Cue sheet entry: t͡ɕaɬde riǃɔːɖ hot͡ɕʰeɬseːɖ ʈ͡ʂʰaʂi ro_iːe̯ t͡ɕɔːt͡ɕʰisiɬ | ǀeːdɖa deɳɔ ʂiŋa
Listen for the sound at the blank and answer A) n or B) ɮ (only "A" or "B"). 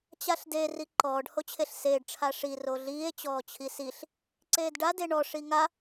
B